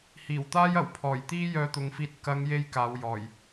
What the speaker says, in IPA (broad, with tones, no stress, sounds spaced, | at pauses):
h iː˨˩ w t̪ aː˥ j ɐ˨˩ w pʰ ɔː˨˩ j t̪ iː˥ j œː˧ t̪ ʊ˨˧ ŋ f iː˧ t̚ k ɐ˨˧ ŋ j e˥ j k aː˨˧ w j ɔː˨˩ j